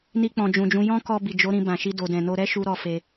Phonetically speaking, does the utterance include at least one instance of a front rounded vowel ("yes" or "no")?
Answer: no